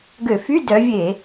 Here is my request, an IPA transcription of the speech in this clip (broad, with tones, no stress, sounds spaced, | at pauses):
ɡ ø˧˩˧ f y˧˥˧ d œ˨˦ vʲ e˧˩˧